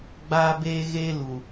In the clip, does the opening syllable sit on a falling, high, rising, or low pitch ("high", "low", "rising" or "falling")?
high